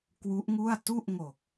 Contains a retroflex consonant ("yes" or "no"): no